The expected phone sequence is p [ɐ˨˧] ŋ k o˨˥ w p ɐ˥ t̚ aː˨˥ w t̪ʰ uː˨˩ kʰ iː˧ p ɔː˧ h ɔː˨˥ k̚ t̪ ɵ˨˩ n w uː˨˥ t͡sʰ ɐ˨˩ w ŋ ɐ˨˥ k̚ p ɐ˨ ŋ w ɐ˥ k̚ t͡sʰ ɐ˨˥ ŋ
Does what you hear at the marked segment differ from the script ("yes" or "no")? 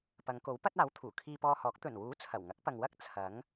no